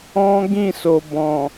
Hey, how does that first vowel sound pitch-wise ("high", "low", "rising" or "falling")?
high